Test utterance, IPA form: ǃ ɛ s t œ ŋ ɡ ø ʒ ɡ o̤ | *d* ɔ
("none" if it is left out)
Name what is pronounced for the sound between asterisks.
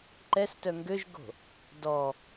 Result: d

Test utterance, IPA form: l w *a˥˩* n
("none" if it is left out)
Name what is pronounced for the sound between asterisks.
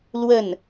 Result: ə˥˩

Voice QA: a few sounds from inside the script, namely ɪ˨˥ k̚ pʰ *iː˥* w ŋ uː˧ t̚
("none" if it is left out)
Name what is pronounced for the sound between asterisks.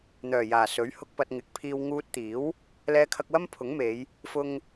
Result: iː˧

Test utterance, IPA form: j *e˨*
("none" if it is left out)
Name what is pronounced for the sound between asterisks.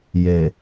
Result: e˨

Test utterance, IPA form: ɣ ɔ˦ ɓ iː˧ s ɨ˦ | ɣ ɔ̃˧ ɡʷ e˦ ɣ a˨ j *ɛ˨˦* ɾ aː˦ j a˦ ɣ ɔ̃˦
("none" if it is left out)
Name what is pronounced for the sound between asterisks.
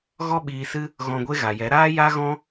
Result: ɛ˨˦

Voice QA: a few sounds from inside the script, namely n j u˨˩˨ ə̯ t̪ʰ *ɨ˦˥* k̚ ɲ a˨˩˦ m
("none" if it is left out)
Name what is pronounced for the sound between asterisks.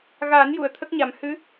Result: ə˦˥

